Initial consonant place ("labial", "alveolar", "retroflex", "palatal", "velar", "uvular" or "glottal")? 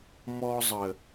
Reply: labial